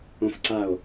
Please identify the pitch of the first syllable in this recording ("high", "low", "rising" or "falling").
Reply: high